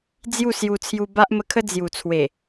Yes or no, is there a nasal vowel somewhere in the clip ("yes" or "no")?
no